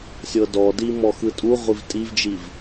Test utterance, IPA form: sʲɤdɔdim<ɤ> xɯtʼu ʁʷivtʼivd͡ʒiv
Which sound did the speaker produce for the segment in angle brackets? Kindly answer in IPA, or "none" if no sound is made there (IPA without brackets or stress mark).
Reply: ɔ